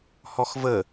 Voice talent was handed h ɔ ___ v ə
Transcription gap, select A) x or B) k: A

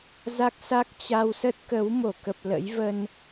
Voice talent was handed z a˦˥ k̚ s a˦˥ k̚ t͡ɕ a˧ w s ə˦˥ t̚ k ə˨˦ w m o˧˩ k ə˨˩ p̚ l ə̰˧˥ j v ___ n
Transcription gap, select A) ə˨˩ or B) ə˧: B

